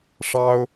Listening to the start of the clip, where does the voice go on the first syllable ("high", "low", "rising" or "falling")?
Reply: high